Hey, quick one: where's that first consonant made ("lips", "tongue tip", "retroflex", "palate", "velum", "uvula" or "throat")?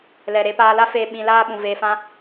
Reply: tongue tip